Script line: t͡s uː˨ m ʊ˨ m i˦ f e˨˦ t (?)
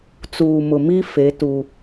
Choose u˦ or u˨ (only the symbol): u˦